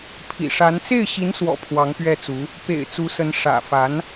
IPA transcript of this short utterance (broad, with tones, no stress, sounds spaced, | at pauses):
pʰ ḭ˨˩ ʂ a˧˥ n t͡s e˥˩ ɪ̯ ɕ i˧˥ n s w ɔ̰˨˩ pʰ w ɑ˧˥ ŋ p ɥ ɛ˥˩ t͡s u˧˥ | p ḛ˨˩ ɪ̯ t͡s u˧˥ s ə˧˥ n ʂ ä̰˨˩ f a˧˥ n